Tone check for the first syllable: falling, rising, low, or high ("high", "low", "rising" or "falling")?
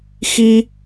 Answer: high